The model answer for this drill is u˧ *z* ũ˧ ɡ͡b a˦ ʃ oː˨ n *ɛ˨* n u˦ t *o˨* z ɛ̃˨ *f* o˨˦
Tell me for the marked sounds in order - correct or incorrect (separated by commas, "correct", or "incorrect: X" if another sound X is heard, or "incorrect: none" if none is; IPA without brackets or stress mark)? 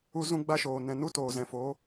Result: correct, incorrect: ɛ̃˨, incorrect: oː˨, correct